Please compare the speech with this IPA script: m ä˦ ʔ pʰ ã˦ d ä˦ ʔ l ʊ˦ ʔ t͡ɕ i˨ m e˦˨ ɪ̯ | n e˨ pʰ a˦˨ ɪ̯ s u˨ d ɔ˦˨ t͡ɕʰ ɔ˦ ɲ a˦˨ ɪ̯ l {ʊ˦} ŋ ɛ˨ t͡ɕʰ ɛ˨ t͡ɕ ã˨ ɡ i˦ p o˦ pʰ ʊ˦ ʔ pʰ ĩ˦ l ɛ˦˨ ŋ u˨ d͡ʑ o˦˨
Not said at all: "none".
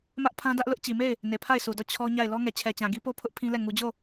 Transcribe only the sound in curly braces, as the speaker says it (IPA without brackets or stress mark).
ɔ˦